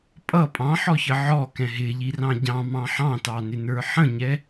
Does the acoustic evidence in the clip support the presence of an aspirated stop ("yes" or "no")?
no